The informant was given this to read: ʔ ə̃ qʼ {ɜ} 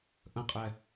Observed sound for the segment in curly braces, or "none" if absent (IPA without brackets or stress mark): ɛ